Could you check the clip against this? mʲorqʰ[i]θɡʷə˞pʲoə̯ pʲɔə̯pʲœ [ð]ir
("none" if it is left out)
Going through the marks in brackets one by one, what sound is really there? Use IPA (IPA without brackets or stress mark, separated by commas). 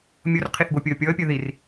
i, ð